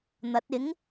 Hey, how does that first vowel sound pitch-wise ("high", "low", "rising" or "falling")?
rising